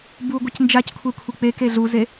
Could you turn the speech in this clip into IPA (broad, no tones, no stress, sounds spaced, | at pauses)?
b u ɡʷ ɪ c n d͡ʒ a c kʷʰ e kʷʰ i k͡p e k e ɮ u z e